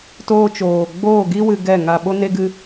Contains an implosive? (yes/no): yes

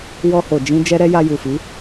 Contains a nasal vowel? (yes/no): yes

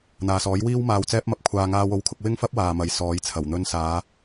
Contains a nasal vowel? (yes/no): no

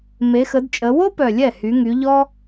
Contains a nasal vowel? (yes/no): no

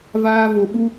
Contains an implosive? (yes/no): yes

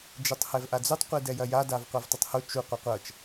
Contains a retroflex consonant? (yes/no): no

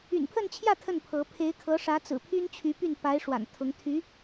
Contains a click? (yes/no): no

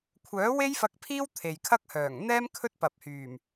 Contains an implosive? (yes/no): no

